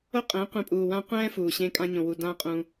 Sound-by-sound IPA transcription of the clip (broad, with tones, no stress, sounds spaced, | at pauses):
o˦ qʼ ɛ̃˨˦ qʷ ẽ˧ pʼ uː˨ w ã˦ qʷ ɛ̃ː˦ f uː˨ ɕ ẽ˧ kʼ ã˧ ɲ õ˨ w u˧ d ãː˧ qʼ ũ˧